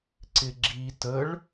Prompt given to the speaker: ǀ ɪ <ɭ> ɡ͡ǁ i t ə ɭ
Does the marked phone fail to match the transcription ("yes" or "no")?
yes